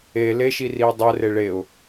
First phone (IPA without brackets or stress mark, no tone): e